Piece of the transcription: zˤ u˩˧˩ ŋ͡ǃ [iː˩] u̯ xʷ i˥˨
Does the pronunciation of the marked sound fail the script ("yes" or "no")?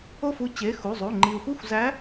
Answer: yes